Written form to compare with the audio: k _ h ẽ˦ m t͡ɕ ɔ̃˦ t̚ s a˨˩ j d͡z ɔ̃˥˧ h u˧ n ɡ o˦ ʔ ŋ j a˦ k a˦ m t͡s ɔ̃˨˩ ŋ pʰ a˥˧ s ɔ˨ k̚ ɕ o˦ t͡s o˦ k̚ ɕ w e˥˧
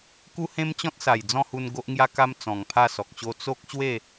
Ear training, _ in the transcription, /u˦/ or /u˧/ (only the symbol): u˦